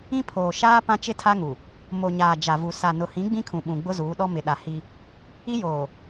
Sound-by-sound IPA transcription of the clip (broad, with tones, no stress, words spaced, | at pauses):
ĩ˦pʰoː˨ ʃaː˦ pã˦t͡ʃɪ˦tʰa˦ŋu˨ | mo˨ɲaː˨ d͡ʒa˨vu˨ sa˨nʊ˨hĩ˨˦ ɡ͡bĩ˦kʰũ˨ɓũ˨ ɡ͡bʊ˦zuː˨˦ɗɔ˦ mɪ˨ɗa˨ hi˦ | i˦joː˨